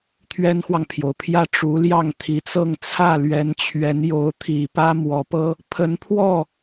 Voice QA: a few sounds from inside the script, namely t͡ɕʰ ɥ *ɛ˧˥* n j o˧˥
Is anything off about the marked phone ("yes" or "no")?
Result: no